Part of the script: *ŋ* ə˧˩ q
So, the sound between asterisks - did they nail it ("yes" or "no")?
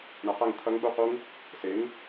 no